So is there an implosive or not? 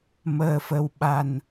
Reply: yes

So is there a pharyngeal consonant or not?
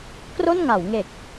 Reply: no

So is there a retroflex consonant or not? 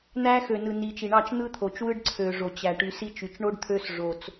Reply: yes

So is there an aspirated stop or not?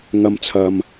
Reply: yes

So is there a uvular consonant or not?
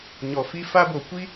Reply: no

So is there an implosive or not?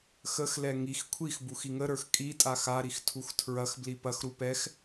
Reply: no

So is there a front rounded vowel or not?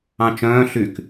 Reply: yes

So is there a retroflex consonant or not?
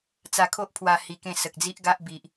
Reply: no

